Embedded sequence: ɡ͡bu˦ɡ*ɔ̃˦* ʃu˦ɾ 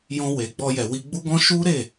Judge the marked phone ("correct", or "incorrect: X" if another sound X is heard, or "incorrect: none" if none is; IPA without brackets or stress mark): correct